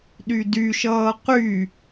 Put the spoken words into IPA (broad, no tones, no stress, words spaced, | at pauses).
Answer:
ɗydyʃʌː qy